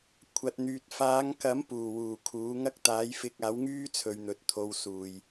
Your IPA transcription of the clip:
kʷʰ ɐ˨ t̚ n̪ yː˨ t̚ f aː˨˧ ŋ k ɐ˨˥ m p uː˨˩ w uː˨˩ kʰ uː˨˥ ŋ ɐ˥ k̚ t̪ aː˨˥ j f ɪ˧ k̚ aː˨˥ w ŋ yː˥ t͡sʰ ɵ˨ ɥ n̪ ɵ˨ t̚ t̪ʰ o˧ w s uː˨ j

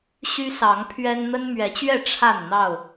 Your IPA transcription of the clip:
ɕ y˦ s ɑ˨˦ ŋ pʰ ɥ ɛ˦ n n̪ ə˦ n m ɥ ɛ˨˦ t͡ɕ ɥ ɛ˥˨ ʈ͡ʂʰ a˥˨ n n̪ ɑ˥˨ ʊ̯

